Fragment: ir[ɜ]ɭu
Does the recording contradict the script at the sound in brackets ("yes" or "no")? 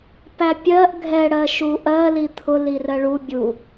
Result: no